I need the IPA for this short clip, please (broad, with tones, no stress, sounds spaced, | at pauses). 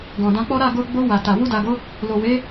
ɡ ɔ̃˨ d ã˧ k͡p ɔ˦ ɾ a˦˨ ɡ o˧ ɡ͡b o˧ w a˨ t a˨ w u˧ d a˨ ɡ o˨˦ | l o˨ w e˨˦